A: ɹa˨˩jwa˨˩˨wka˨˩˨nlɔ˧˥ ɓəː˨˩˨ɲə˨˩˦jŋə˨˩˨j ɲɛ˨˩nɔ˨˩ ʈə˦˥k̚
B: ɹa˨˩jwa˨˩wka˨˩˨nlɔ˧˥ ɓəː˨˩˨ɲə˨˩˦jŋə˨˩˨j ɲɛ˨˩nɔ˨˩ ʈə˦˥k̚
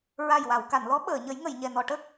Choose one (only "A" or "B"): A